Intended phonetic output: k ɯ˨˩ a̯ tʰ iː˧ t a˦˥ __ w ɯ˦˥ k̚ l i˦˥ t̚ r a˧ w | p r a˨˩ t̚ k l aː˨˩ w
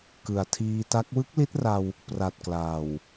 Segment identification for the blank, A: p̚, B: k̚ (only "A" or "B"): B